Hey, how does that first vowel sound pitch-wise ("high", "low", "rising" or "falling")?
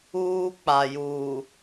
low